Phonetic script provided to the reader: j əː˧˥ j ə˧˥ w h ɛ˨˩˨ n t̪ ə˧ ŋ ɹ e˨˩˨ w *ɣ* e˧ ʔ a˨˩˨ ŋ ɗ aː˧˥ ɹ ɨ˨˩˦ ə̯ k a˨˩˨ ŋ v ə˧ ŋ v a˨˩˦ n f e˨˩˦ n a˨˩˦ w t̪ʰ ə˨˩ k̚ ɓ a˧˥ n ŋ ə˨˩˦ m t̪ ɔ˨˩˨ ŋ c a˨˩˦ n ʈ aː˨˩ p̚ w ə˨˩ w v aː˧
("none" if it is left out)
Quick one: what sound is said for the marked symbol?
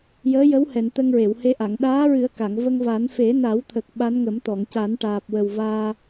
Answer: h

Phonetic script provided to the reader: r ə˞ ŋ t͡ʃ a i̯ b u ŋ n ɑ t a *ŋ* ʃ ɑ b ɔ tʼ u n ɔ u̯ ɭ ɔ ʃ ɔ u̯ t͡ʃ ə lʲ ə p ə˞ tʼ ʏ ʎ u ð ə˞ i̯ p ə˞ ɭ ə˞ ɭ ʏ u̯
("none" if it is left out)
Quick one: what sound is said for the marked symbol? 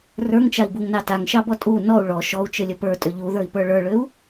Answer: ŋ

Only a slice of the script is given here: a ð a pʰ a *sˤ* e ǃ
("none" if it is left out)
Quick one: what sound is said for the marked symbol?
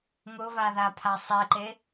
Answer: sˤ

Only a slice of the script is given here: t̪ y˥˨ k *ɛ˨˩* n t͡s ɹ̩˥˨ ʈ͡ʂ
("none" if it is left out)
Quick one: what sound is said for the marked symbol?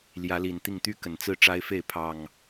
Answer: ə˨˩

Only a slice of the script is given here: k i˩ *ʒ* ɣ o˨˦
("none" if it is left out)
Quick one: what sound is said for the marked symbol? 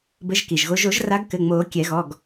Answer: ʒ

